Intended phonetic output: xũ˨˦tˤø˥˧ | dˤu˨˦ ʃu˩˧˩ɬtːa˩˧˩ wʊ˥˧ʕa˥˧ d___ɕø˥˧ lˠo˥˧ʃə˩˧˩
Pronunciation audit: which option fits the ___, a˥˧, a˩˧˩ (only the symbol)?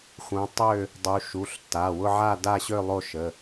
a˥˧